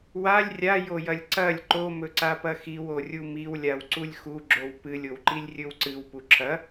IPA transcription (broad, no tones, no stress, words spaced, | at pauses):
walʲ rʲajojɐlʲ ǀɐlʲ ǃomɵǀapɐ xiworʲu miwlʲaw ǀulʲxuɡ͡ǁow pɨlʲowǃilʲ rʲɵwǀɨw puǁʰɐ